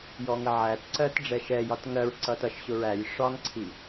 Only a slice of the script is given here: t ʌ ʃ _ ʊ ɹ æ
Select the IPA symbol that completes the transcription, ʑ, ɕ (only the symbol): ɕ